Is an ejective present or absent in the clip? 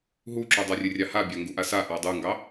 absent